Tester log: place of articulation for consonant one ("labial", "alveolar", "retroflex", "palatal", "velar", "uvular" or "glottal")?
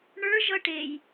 retroflex